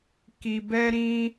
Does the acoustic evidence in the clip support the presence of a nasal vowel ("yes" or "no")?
yes